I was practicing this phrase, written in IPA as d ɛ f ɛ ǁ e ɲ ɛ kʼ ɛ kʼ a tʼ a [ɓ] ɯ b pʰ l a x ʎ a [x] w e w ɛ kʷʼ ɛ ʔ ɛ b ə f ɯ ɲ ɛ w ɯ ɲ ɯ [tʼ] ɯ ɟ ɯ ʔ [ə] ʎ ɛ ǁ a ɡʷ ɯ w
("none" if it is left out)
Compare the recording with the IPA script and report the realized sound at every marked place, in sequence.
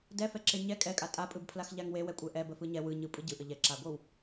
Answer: pʼ, ŋ, pʼ, ə

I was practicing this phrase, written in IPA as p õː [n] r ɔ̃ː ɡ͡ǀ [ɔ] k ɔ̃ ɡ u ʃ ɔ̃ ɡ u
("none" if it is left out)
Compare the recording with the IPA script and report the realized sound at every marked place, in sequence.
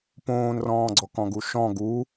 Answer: n, ɔ

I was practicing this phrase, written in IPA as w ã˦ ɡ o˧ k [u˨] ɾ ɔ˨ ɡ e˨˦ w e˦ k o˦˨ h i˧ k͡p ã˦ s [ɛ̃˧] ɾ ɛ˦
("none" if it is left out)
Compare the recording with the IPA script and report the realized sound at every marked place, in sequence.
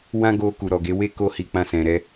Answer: u˨, ɛ̃˧

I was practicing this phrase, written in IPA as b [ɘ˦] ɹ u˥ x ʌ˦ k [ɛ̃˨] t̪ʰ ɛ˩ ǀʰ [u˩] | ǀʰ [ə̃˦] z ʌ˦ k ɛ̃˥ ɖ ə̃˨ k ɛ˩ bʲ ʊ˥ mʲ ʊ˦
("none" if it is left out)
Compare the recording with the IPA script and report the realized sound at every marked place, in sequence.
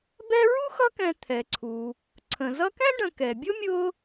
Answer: ɛ˦, ɛ̃˨, u˩, ə̃˩

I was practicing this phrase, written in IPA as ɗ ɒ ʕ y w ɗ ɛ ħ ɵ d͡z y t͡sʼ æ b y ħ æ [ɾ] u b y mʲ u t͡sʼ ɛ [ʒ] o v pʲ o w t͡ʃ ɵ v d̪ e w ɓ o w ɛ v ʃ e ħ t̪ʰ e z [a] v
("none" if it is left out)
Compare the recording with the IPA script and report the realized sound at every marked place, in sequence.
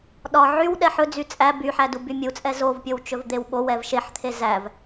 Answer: d, z, æ

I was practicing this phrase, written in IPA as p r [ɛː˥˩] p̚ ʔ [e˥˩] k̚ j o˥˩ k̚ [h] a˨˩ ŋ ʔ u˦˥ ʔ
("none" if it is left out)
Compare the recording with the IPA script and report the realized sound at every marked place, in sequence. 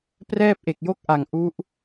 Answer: ɛː˥˩, e˨˩, ʔ

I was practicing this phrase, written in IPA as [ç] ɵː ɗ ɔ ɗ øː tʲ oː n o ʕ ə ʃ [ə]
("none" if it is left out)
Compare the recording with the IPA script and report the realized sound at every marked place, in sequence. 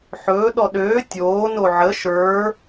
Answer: ħ, ə˞

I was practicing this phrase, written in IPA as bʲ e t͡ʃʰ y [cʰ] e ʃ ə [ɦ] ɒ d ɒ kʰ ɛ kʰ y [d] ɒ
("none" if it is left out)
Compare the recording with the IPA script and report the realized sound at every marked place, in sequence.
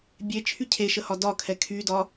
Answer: cʰ, h, d

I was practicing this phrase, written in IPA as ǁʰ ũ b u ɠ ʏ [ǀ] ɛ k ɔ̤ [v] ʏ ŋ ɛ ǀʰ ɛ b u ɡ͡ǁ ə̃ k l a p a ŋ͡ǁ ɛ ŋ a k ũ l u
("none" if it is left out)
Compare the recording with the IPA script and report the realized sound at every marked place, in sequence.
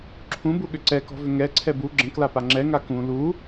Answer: ǀ, v

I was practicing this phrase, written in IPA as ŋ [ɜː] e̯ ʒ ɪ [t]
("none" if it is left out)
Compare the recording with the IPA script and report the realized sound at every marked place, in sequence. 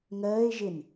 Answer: ɜː, n

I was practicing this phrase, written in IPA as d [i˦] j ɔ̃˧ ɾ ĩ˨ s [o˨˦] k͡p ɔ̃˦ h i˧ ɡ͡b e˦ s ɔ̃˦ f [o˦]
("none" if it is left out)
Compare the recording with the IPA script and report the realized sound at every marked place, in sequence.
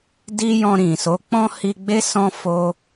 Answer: i˦, o˨˦, o˦

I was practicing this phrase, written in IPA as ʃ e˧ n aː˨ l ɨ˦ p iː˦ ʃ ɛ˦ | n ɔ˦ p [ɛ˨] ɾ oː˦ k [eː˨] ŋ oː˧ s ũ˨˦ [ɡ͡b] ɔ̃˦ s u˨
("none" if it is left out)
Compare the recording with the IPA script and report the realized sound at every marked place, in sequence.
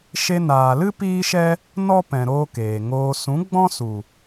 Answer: ɛ̃˨, eː˨, ɡ͡b

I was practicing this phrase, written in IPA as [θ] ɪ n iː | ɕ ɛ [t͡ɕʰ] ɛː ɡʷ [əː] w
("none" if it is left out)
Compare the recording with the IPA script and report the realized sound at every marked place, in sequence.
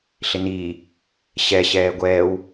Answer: ɬ, ɕ, ɛː

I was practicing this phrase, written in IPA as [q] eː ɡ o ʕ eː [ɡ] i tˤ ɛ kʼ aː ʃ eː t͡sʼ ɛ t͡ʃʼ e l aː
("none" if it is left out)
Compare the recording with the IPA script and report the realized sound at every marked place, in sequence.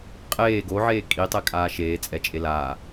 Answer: qʼ, kʼ

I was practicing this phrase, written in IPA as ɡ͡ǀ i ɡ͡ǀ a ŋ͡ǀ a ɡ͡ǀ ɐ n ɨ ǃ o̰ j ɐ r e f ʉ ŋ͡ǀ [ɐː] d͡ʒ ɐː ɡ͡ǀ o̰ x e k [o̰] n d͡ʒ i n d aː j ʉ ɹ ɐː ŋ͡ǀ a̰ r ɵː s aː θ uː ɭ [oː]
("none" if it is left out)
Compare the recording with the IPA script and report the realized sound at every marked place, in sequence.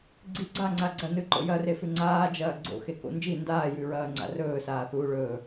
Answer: aː, o̰, ɵː

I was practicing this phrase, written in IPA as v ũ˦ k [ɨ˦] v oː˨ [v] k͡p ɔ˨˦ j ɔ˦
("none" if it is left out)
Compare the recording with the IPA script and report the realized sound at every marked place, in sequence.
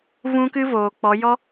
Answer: ɨ˦, none

